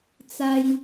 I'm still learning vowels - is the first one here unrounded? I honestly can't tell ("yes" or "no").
yes